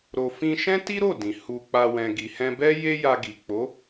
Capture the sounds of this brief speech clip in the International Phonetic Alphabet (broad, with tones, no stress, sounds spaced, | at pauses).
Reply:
ɾ o˧ f ĩ˧ ʃ ɛ̃˦ t i˦ ɾ o˦˨ d ĩ˨ h u˧ k͡p a˧ w ɛ̃˨ ɡ i˨ h ɛ̃˧ b ɛ˦ j e˦ j a˧ ɡ i˨ k͡p o˨˦